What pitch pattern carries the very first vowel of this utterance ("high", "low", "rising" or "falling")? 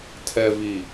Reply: low